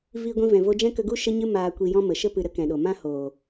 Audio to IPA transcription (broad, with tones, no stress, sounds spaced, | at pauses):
v iː˧ ɡʷ ĩ˧ v ɛ̃˨ v o˧ d͡ʒ ɛ̃˦ k ə˧ ɡ u˦ ʃ ə˦ ɲ ɨ˦ m aː˧ kʷ i˧ j ɔ̃˦ m ə˨ ʃ ə˧ p ɨ˨ ɾ ə˧ k ɛ̃˨ ɗ o˨ m ã˦ h oː˨